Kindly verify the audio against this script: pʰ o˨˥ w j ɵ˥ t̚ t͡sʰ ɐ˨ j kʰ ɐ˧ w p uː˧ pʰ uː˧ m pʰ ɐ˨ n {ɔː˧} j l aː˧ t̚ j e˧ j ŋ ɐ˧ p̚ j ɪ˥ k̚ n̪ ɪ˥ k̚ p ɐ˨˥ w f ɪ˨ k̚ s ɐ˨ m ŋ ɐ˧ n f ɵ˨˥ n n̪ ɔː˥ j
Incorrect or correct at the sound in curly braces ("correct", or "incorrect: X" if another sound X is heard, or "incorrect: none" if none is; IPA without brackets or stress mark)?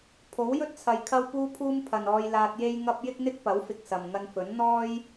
correct